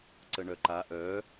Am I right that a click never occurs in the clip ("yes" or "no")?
no